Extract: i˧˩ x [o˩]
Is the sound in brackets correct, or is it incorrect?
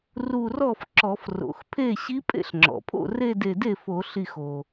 correct